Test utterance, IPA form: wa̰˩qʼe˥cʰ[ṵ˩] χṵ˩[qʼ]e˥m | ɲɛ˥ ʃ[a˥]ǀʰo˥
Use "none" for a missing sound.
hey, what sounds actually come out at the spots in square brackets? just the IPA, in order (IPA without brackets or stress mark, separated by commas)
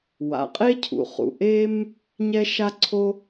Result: ṵ˩, ʔ, a˥